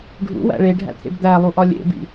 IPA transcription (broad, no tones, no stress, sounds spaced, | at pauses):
ɖʱ ṵ w æ̰ ɭ e ɖʱ æ̰ t̪ʰ ḛ b d̪ æ lˠ u ʔ ɒ lʲ ḛ b ḭ